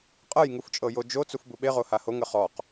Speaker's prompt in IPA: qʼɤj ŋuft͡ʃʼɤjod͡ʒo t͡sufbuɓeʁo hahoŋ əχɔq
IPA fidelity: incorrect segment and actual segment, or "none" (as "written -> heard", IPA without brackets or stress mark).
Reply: none